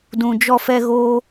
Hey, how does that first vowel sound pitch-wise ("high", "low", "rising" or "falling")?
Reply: low